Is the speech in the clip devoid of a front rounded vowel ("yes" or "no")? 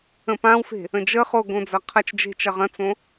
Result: yes